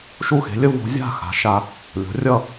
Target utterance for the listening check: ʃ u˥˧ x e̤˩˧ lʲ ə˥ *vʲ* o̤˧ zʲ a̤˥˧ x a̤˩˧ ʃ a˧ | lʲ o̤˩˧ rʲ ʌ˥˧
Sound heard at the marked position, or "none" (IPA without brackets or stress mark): v